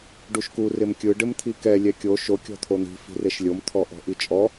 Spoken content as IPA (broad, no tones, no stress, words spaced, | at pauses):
ɖuʃku rɪmkʲɯ ɖɪmt̪ʰikɛ lʲɛkʲo ʃo kʲɔ̤t̪ʰon̪i̤ fi̤reʃlʲom t̪ʰɔʔɔ̤ʔit͡ʃʼɔ